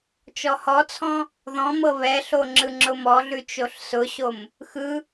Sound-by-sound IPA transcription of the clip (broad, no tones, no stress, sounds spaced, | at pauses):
t͡ʃ ɔ h ɔ t͡sʰ ɔ̃ | ð ɔ̃ m ɤ β ɛ ɬ o ŋ͡ǁ ɯ ŋ͡ǁ ʊ m ɔ ɮ ʉ t͡ʃ o ɬ s ʊ ɕ o m | x ɯ